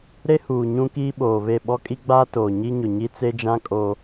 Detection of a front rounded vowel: absent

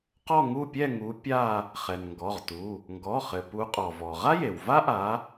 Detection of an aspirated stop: absent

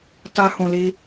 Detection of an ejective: absent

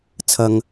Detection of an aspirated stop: present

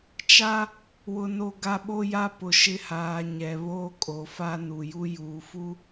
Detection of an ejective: present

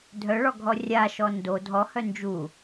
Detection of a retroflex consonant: present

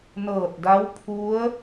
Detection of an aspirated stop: present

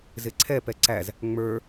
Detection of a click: present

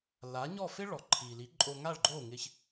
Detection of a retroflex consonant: present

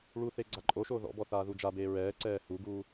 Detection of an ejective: present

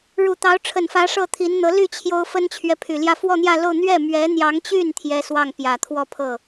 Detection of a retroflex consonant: present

